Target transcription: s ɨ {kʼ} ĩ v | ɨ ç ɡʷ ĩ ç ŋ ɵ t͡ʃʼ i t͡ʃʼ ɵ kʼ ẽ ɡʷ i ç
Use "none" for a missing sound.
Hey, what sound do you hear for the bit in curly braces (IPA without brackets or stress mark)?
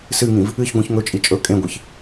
ŋ